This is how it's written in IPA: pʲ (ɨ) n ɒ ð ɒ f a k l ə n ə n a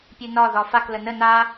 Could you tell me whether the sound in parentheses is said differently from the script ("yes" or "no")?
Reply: no